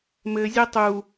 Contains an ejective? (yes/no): no